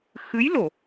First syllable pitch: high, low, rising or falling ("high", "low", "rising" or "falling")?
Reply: rising